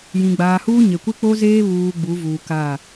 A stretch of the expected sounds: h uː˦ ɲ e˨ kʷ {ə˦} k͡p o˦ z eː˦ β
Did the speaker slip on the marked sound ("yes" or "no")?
yes